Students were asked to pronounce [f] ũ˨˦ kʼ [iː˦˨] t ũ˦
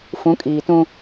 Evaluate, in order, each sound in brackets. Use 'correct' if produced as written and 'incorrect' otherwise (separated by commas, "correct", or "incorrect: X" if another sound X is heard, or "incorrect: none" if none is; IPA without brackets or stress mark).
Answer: correct, incorrect: iː˨